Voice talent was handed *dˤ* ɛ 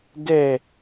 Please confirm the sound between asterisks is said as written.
no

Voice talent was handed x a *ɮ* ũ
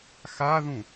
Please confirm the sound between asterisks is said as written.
no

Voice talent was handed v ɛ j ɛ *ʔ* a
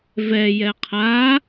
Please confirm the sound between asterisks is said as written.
no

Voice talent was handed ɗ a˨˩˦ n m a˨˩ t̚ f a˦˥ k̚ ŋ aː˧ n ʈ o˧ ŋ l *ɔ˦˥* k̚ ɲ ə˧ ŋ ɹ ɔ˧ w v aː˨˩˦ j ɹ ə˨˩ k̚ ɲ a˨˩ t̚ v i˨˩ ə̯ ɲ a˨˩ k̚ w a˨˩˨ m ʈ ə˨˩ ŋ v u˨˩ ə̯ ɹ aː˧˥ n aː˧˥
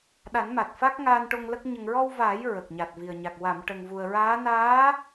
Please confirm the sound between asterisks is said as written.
no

